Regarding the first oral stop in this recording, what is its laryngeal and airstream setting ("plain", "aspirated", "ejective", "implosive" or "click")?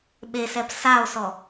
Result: implosive